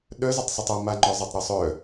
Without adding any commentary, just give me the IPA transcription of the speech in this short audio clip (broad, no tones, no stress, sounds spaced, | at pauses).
ɗ œ z a tˤ sˤ o tˤ ɔ m a ŋ͡ǃ ɔ zˤ a tˤ ɾ o sˤ œ